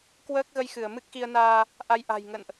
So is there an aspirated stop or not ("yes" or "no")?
no